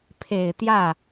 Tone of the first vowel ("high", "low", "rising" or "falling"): low